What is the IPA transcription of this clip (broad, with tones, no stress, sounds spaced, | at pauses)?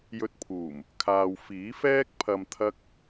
j ɵ˧ t̚ pʰ uː˨˩ m | kʰ aː˨ w f iː˨˥ f ɛː˥ k̚ pʰ ɐ˧ m t̪ʰ ɐ˥ k̚